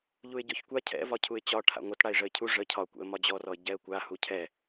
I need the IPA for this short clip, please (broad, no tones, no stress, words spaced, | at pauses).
ʎuɪ̯ɟɔçkʷa cʰɛ̰vɒ cʰuɪ̯t͡ɕɒ ʈʰa̰ŋʷətɽaɪ̯ ʐəɪ̯cʰu ʐə cʰɒkʷɛ̰ə̯ mɒd͡ʑɔrɔə̯ ɟɛə̯kʷa hucʰɛ